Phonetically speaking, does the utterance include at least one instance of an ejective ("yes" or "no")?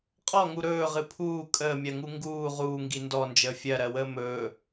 yes